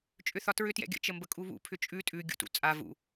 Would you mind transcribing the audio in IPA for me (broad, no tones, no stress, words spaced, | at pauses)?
t͡ʃʼʏθɒtɹʏ tjɛ̰ɡʲə̰ t͡ʃəmbəkʼuβṵ pʰʏt͡ʃʼʉ tʼʉ ɡʲṵtṵt͡sʼa vṵ